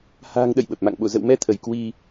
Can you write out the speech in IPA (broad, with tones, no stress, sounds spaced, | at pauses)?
h a̤ː˨˩ ŋ ɗ ə̰˧˨ j ɓ ə˨˩ p̚ m a̰˧˨ ŋ ɓ o̰˧˨ z ə̰˧˨ w m ɛ˧ t̪ʰ ə˧˩ j k w i˧